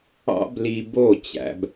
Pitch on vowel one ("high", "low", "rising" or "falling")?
high